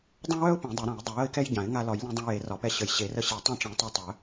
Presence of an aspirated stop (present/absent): absent